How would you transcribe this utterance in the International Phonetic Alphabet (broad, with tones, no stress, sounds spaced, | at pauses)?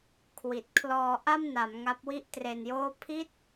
kʰ w i˨˩ t̚ kʰ l ɔː˧ ʔ a˥˩ m n a˩˦ m ŋ a˦˥ p̚ w i˥˩ ʔ t r e˧ n j oː˥˩ pʰ i˥˩ t̚